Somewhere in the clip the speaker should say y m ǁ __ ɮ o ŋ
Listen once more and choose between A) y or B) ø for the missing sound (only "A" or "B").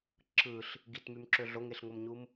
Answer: B